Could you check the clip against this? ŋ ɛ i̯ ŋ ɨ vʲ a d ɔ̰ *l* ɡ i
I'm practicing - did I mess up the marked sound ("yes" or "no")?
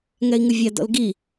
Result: no